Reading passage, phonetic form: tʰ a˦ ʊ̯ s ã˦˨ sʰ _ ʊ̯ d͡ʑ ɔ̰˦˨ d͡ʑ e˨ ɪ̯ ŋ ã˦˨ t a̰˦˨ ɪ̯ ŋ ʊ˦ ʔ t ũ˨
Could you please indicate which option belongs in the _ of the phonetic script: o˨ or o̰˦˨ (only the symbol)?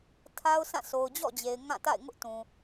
o˨